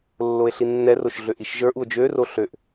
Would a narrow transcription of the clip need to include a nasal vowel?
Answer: no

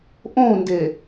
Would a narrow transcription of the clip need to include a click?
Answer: no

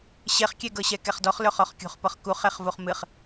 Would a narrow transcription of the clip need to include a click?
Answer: no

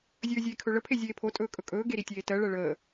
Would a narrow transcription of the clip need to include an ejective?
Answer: yes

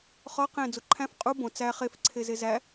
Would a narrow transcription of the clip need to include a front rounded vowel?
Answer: no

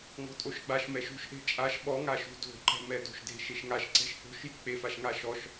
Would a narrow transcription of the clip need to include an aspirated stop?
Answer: no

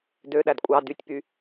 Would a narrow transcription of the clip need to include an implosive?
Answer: yes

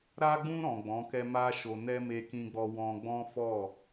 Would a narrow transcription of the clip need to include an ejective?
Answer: no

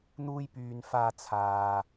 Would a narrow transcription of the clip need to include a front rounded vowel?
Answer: yes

